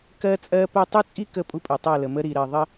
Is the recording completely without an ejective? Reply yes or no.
no